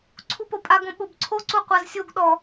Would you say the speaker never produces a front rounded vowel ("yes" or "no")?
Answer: yes